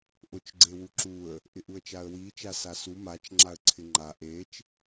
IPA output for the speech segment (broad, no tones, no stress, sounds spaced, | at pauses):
ʔ ʊ t͡ʃ ɡ͡ǀ e w u ǁ u ə̯ | ʔ ɪ ʔ u ə̯ t͡ʃ a ə̯ w i t͡ʃ a s a s u m a t͡ʃ ŋ͡ǁ a ə̯ ǀʰ ɪ ŋ͡ǃ a ʔ e t͡ʃ